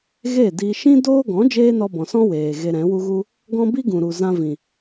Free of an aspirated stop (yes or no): yes